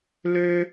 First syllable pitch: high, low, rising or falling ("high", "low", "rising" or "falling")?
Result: high